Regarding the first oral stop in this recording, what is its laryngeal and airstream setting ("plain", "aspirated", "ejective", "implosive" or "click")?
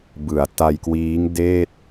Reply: plain